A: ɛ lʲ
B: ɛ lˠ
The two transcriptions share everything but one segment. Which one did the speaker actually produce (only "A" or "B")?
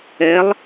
B